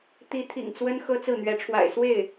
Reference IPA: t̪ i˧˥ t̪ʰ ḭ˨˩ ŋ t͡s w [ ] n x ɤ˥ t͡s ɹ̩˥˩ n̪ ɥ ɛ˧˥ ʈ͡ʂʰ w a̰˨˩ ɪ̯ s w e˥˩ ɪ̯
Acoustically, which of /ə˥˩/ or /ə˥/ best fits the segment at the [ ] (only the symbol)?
ə˥